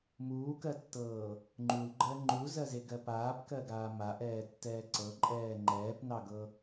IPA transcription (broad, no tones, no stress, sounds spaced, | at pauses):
m uː k ɜ tː ɤː | ŋ͡ǃ u l ɡ͡ǃ ɜ ŋ͡ǃ u z ɜ z e ɡ ɜ p aː p k ɜ ɡ aː m a ʔ ɛː tː ɛː ǀ ɤ ǃʼ ɛː ŋ͡ǃ ɛː p n ɑ ɡ ɤ